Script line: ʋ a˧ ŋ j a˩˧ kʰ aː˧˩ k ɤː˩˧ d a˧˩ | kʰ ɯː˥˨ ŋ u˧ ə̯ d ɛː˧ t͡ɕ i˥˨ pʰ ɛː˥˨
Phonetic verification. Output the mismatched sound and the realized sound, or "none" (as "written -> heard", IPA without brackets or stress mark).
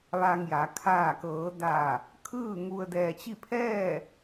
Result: none